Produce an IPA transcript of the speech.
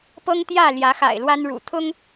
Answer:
p ɤ˦ ŋ t̪ j ä˥˨ l j ä˨˦ x a̰˨˩ ɪ̯ l w a˦ n ɻ ṵ˨˩ t̪ʰ ʊ˦ ŋ

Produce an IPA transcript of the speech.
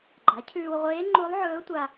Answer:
ɡ͡ǃ a˩˥ cʰ ʉː˧ w ʁʷ eː˧˥ ŋ͡ǃ u˧˥ lˠ ʕ ɵː˧˥ tʷ a˧

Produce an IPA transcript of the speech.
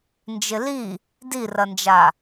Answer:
n d͡ʒ ɪ l i | d i r ɐ n d͡ʒ a

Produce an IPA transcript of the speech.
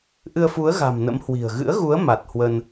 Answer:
ʔ ɨ˧ ə̯ f u˨˦ ə̯ ɣ a̤˨˩ m n ə̰˧˥ m h w i̤˨˩ ə̯ ɣ ɨ̰˧˥ ə̯ ɣ u˨˦ ə̯ m a˨˩ t̚ h w ə˧ n

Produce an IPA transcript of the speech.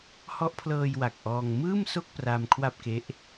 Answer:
h ɔ˦˥ ʔ pʰ l ɤː˧ j w a˨˩ k̚ ʔ ɔː˧ ŋ m ɯː˥˩ m s o˥˩ k̚ p r a˧ m kʰ w a˥˩ p̚ k e˦˥ ʔ

